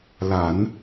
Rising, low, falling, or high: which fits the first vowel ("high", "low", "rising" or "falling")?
low